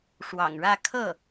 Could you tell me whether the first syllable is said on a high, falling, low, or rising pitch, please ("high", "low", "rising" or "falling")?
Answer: low